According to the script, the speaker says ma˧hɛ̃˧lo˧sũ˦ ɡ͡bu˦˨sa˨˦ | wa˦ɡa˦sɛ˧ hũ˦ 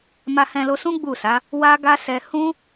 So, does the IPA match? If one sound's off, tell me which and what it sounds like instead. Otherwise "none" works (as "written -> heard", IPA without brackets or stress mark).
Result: none